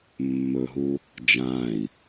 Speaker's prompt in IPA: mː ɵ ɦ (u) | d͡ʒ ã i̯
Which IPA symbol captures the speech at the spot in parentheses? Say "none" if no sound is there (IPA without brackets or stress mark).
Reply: u